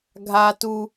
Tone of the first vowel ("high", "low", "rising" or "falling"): high